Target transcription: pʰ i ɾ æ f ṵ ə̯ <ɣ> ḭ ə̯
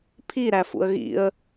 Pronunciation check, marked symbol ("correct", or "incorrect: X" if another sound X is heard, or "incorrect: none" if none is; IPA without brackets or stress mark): correct